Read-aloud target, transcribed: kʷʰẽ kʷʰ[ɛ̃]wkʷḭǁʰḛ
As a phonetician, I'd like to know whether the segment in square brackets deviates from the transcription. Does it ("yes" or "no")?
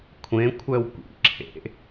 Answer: yes